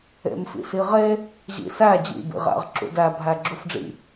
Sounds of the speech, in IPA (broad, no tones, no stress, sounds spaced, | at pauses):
ḛ m f ḭ s i ʁ e | ʑ ḭ s æ d͡ʑ ḭ b ḭ ʁ æ̰ ʁ ǁ ṵ d æ bʱ æ ɡ͡ǁ u f ɖ͡ʐ ḭ